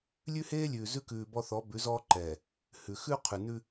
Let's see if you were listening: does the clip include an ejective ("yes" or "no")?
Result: no